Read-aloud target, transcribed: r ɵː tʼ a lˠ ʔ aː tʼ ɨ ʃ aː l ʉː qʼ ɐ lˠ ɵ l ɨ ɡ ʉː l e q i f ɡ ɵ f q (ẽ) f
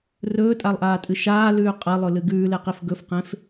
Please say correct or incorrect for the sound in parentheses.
correct